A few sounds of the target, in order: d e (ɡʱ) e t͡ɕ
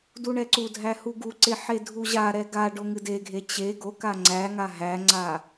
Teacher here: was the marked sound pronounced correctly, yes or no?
yes